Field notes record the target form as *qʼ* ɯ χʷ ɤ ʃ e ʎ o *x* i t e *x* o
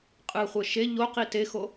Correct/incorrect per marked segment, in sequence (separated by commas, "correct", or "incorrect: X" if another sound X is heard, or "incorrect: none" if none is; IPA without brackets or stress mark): correct, incorrect: q, correct